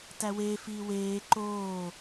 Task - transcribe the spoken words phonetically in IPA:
tæweːfiː weː ǃoː

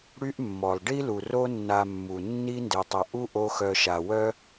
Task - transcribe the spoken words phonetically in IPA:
ɽy˦ʔmːɔ˨lˠ ɖi˦lu˨ro˦ nːa˧mːu˨ nːi˦nde˨tˤə˨ ʔu˦ ʔo˦xœ˧ ʃa˨wœ˦

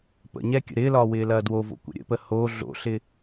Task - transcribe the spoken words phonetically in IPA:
pə̰ɲɛ kʲə̰ɾɪːlɒː wɪːlɐːdwovo̰ kʷə̰ɾʲə̰pə ho ɮo̰ɬɪ

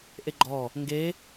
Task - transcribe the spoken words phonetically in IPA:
ʔeɡ͡ǃɔ | ŋɡe

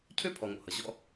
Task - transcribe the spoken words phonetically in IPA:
cʰø˦ pʰɔ˨ŋo̰˨hʌ˨ ʑɔ̰˦

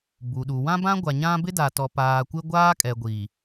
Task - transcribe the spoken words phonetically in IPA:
bu˨ɗu˨ wã˦bã˦ɡʷa˨ɲã˦ bɪ˦da˨ tɔ˨paː˨kʷɪ˦ ɡʷaː˦kʼɛ˨ɡʷi˨

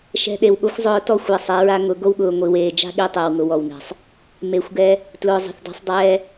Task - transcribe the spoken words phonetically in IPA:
ʃɛ̤˧ɗe˨wɠo˦xʷ zˤʊː˧tɔ˦˨xʷ ɛ˧sˤɛ˨˦ɹa˦ ŋʊ˨˦ ɡo˧wɠʊː˨ ŋʷi˨weː˨d͡ʒa̤˦ ɠi˧tˤɛ˨wŋʊ˨ wɔ˨wnɛ̤˨sˤ | me˨˦xʷɡɛ˧ | tlʊː˨zˤɛ̤˨θda̤˧sˤdˤɛː˧

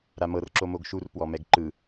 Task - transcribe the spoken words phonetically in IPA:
ɾamɤr ǁomoɡʃur pwɔmɛɡǃɯ

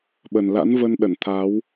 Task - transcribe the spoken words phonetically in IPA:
ɓə˨˩n la̰˧˥nvə˧n ɗə˧˩nt̪ʰa˨˦w

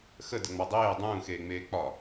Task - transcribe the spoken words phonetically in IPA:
xədəŋ͡mɒ dˤeː dˤũːxeːŋ͡meː k͡pɒ

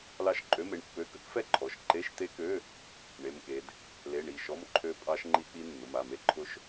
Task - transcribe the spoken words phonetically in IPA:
lɑ˦˥ʃǃʼø˧˥˧me˩˧˩ɳpːø˧˥˧ kə˦˥kfɛ˦˥ǃʰɔ˩˧˩ʃ ǃe˧˥˧ʃt̪e˦˥kø˧˥˧ | ɳe˧˥˧mke˦˥d | le˧˥˧ɳi˩˧˩ ʃɔ˧˥˧mǃʰø˦˥ pʼɑ˦˥ʃŋ͡ǃi˦˥k͡pi˦˥ nːʊ˩˧˩ma˩˧˩me˦˥ǃʰʊ˦˥ʃ

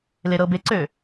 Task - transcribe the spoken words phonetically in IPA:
leɾɤbeǀø

